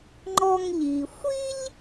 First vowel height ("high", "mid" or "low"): mid